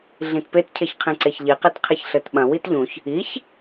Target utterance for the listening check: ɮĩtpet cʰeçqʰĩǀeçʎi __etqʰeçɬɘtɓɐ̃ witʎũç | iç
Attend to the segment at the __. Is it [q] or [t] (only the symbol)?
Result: q